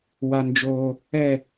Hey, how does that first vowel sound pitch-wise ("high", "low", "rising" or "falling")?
high